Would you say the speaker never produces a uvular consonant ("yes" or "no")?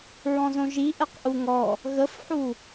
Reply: no